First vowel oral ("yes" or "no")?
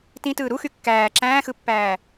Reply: no